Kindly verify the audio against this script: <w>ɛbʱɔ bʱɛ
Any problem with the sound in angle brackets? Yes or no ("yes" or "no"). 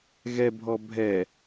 yes